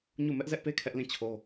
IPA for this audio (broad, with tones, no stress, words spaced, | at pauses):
ɲu˦˨ mɛ˦ʔzɛ˦ʔpe˦ kʰɛ˦ʔlĩ˦˨t͡ɕʰo˦